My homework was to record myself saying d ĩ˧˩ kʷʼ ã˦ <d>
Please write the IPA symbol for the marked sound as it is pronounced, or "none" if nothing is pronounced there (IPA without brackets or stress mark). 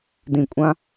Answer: none